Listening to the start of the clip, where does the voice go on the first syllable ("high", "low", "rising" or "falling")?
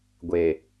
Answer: low